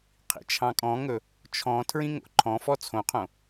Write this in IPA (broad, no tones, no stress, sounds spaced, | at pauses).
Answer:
qʰ ḭ t͡ʃʰ ɑ̃ kʼ ɔ̃ ŋ ɵ | t͡ʃʰ ɔ̃ tʰ ɹ ĩ ŋ o̰ ǃʰ ɔ̃ f ɔ t͡sʰ õ qʰ õ